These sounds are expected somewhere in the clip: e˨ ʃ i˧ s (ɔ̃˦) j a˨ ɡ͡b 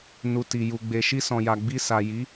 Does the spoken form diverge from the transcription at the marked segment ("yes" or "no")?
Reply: yes